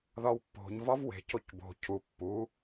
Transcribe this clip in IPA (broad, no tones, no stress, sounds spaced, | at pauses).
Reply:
ð ɒ w pː o̤ ɲ v ɒ v w e̤ c o c b o̤ cʰ u pː u